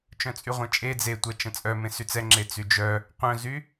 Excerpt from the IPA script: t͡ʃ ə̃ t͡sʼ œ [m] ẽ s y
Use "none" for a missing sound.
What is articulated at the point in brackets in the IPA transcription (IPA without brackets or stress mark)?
m